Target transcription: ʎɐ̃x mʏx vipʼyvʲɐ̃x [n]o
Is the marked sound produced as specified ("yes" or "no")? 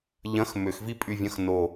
yes